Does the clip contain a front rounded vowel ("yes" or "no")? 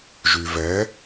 yes